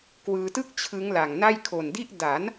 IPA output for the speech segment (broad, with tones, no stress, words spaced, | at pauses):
kwɯː˧tɯ˥˩k̚ t͡ɕʰɯ˦˥ŋla˨˩ŋna˥˩j kʰo˨˩ndi˥˩ʔ da˩˦n